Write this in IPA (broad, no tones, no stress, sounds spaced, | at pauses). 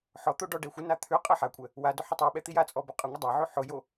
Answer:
ħ ɔ t̪ o ɖ ɔ ɖ ɛ xʷ ə n a t̪ʰ ʉ qʼ ɛ ħ a kʷʼ ɛ | w a d ʊ ħ ʊ tˤ ʉ ɓ ɛ t̪ i j a t͡sʼ ɔ b ʊ qʼ ə ŋʷ ə dˤ ɛ ʕ ʉ ħ ʊ j o